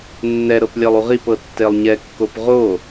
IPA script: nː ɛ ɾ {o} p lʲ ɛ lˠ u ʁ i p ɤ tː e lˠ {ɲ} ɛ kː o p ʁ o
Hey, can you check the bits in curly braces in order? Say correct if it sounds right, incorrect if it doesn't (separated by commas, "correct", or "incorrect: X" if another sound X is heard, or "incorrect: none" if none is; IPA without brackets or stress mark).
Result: incorrect: ɤ, correct